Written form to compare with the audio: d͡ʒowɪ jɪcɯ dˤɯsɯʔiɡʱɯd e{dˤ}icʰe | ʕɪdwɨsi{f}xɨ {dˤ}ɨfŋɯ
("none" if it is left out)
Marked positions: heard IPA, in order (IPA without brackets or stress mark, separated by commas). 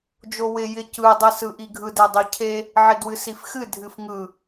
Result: dˤ, f, dʱ